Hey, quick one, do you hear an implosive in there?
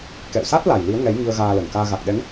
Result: yes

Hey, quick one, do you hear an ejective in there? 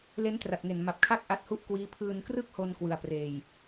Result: no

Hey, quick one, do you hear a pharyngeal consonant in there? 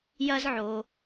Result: yes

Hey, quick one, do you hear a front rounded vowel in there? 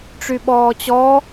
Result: yes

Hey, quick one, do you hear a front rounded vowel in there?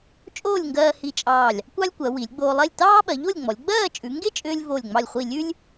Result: yes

